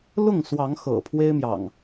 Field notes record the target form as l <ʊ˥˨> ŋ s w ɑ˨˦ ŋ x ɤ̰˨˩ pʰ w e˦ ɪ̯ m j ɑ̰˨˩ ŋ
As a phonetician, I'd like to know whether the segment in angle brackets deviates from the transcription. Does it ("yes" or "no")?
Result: no